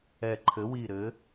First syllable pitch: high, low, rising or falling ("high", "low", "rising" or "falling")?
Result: low